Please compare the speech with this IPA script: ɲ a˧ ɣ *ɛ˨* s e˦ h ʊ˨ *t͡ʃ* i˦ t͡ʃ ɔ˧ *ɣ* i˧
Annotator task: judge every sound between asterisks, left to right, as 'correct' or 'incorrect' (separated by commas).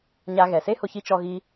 correct, incorrect, correct